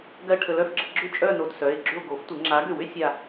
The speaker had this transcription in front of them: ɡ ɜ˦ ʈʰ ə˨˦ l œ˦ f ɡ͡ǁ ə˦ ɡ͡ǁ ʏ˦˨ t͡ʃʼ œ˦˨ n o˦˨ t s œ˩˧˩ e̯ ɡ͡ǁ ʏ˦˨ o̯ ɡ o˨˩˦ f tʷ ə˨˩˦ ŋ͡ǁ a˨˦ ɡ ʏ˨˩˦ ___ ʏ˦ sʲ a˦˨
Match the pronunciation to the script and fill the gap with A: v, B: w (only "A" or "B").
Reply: B